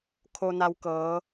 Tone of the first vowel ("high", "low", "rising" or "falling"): low